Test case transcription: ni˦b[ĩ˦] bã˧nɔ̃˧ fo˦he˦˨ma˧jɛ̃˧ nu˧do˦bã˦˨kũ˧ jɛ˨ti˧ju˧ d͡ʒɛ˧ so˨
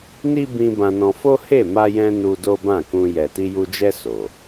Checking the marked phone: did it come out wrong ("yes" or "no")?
yes